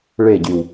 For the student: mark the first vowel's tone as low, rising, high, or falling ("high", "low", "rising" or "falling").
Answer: falling